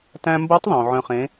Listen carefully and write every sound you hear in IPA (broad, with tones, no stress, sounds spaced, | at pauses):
t æ̃˧ m b o˧˥ tˤ ðˤ õ˩ ʕ œ̃˧ χ ẽ˧˥